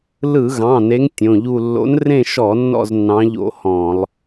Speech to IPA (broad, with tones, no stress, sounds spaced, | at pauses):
l ɯ˧˩˧ ɣ ɑ̃˩˧˩ n e˨˦ ŋ tʲ õ˩˧˩ ʎ u˦˨ lː o̰˨˦ n r ẽ˦˨ ʃ ɔ˧˩˧ nː ɔ̰˦˨ z nː ɑ̃˨˦ ʎ o̰˧˩˧ h ɔ̃˧˩˧ lˠ